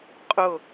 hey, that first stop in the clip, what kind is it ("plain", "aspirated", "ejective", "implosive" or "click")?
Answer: ejective